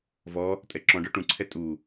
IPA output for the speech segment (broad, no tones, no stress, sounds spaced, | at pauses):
v ɔ | tʼ ɛ ǁ ɔ̃ ɖ ə˞ ʈ ũ ǀʰ ɛ tʼ u